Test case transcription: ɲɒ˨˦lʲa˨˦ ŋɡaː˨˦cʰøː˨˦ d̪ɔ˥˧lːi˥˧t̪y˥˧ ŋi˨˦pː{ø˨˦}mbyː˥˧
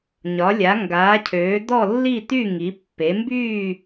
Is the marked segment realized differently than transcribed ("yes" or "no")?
yes